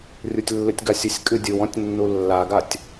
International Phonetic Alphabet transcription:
rʲutʲlːɨtʲɡasʲɨsʲ kʼɨdʲɨw ɔ̃tʲnːulːaɡatʲ

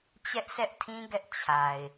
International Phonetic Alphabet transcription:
t͡ɕɛ˦ʔsɛ˦ʔtʰĩ˦ ɡɛ˦ʔ t͡ɕʰa˨ɪ̯

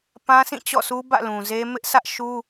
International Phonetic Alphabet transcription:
pã˦sĩ˦˨t͡ɕɔ̰˦˨su˦ bä̰˦˨lũ˨ze˦ mɪ˦ʔsä˦ʔʃu˦

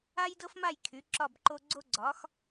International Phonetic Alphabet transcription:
a˥jdɤ˥fma˥˨j kʰy˩˥ǁɒ˥˨bǃo˥ ɡ͡ǀo˥ɡ͡ǀɒ˩˥x

